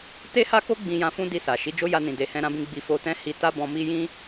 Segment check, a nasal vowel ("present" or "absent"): present